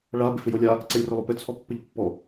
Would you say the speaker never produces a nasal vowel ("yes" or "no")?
yes